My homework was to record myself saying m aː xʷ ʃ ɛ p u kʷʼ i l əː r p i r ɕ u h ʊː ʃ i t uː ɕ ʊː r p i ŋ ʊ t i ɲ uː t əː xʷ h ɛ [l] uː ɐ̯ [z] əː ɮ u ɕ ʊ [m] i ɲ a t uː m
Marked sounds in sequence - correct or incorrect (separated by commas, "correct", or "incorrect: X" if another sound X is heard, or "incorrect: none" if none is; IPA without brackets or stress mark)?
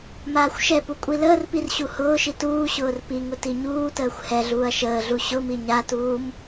incorrect: ɮ, incorrect: ʃ, correct